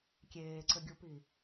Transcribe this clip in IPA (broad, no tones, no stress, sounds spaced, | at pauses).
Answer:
kʲ eː ǀ ɘ ɡʲ u p i